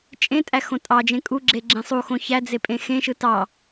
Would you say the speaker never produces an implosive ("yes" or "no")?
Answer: yes